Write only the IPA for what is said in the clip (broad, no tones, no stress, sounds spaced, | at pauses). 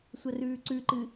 sʷ ɐ r ʉː ǀ ʉ ǃ ɨ